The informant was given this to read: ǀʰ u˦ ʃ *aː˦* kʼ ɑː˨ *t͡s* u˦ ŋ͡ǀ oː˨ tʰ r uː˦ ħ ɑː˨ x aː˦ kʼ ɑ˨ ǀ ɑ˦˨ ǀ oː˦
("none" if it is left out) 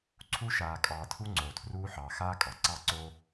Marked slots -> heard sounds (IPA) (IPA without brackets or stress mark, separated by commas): aː˨, tʰ